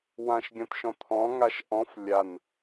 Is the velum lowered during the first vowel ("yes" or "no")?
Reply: yes